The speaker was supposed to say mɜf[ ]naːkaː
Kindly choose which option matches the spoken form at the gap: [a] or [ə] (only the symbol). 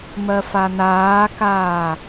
a